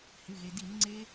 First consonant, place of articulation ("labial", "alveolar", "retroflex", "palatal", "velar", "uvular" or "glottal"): glottal